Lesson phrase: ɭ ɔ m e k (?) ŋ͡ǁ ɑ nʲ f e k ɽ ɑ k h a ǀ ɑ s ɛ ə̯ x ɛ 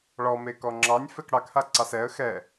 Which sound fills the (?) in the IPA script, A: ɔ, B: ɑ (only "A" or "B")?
A